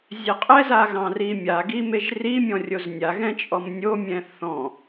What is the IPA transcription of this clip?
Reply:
zʲɛqʼɛza ɣɑ̃rimʲaɡi meʒrimʲɔ̃ rʲoznʲaɣɛ̃ t͡ʃʼɔmnʲomʲɛ̃ θɔ̃

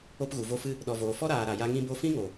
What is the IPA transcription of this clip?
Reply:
o˧pɣu˨vo˧fɨ˧ | ɗɔ˨voː˨fɔ˦ɾaː˨ ɾa˨ja˧ ŋĩ˧bo˧fĩ˦ŋo˨

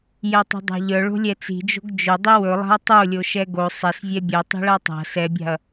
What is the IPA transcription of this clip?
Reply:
jɛtˤo̤dˤa̤ʎœ ɭo̤lʲɛt͡si̤ d͡ʒo̤ɡd͡ʒɵ dˤiwɵlˠa̤ɐ̯ tˤolʲo ʃɛɡo sˤɛsvʲɛ bʲɛ tˤi̤ɭatˤa̤ sɛbʲa̤ɐ̯

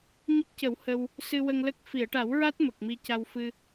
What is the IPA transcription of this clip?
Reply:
ɲə˦˥k̚cə˨˩˦w hə˧w | sɨ˧wə˧ŋlə˦˥k̚ fi˨˩˨ə̯ʈa˨˩˦wɹa˦˥t̚ mə˨˩k̚mi˧ca˧wfɨ˧

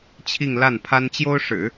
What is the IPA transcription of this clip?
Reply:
t͡ɕʰi˥˧ŋla˥˩n pʰa˥nt͡ɕjo˥ʊ̯ʂɻ̩˨˩˦

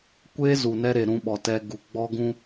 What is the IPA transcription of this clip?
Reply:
kʷeː˦ zu˨nɛ˦ɾe˨ ɾũ˧ɓɔ˨tɛ˧ ɡu˨ɡ͡bɔ˦ɡũ˦

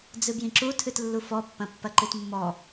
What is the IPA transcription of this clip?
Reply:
d͡zɨbjĩǁu tʰɨtlːufɔ pːɐ̃pːɐǃɨtmːɔ

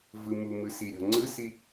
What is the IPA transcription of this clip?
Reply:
vɯmumɯ siɾʲɔ̤ ŋ͡ǀɯsi

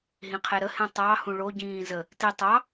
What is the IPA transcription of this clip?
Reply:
ɦĩqʰeɾəhẽ tˤɑhũ ɭoɟĩː zə | ti tˤɑ

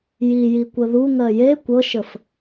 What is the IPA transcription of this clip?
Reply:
jijikʷə ðuŋɜ je kʷɤʃəf

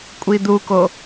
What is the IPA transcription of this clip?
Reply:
kʷʼid̪uko

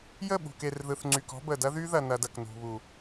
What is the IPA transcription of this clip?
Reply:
jə˦˨ɓṳ˨ke˨rðɯ˨θ ŋ͡ǀy˨kɔ̤˦bə˨ dɐ˦ðy˦ðɐ˨nɐ˨d ɐ˨knṳ˨ βu˨

